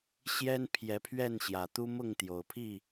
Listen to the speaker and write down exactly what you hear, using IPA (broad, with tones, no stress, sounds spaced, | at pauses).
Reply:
ɕ j ɛ˦ n pʰ j ɛ˨˦ pʰ ɥ ɛ˥˨ n ɕ j ä˨˩ t̪ u˦ m ʊ˥˨ ŋ t̪ j o˨˩ ʊ̯ pʰ i˥˨